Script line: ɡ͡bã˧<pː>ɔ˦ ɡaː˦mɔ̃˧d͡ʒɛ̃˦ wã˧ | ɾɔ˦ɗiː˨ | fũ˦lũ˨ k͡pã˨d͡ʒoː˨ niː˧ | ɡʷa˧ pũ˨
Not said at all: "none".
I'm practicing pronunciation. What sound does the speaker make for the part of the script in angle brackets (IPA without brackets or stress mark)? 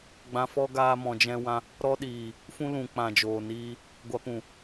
f